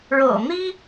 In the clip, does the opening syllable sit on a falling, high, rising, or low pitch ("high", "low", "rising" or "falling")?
low